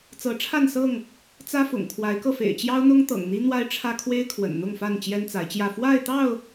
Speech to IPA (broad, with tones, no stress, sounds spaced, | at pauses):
t͡s ɤ˨˦ ʈ͡ʂʰ a˥˨ n s ɤ˥˨ ŋ | t͡s ä˦ f ʊ̰˨˩ ŋ kʰ w a˨˦ ɪ̯ k ɤ˧ f ḛ˨˩ ɪ̯ t͡ɕ j ɑ˦ ʊ̯ n̪ ʊ˦ ŋ t̪ ɤ̰˨˩ ŋ n̪ i˦ n̪ w a˦ ɪ̯ ʈ͡ʂʰ ä˦ kʰ w e˦ ɪ̯ kʰ w ə̰˨˩ n n̪ ʊ˥˨ ŋ f a˥˨ n t͡ɕ j ɛ˦ n t͡s a˨˦ ɪ̯ t͡ɕ j ä˥˨ f w a˥˨ ɪ̯ t̪ ɑ˥˨ ʊ̯